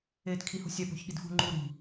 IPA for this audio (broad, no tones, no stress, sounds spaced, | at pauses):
eː t kʰ i h ṳ sʲ æ p o̤ ç ɠ i d f ṳ ŋ͡ǃ u ɾ i̤